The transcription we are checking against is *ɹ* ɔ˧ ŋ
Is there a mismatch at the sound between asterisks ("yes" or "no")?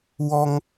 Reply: yes